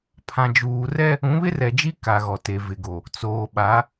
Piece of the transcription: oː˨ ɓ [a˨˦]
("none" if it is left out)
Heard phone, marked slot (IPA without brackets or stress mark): a˨˦